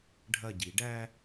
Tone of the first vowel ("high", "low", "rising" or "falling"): falling